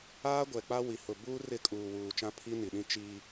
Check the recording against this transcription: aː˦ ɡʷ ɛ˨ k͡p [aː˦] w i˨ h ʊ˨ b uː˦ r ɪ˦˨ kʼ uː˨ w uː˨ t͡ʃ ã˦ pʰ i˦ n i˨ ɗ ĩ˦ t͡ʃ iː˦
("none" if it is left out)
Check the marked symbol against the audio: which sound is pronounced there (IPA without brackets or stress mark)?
a˦